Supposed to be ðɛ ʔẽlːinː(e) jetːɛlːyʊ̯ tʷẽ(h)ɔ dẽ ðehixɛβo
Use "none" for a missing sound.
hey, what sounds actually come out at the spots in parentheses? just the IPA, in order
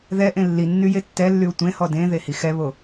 y, h

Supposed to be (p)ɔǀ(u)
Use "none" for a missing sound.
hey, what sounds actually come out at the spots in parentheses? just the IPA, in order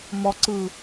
m, ɯ

